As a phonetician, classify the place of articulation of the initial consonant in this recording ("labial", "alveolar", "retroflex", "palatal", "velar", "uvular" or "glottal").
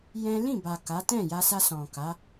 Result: palatal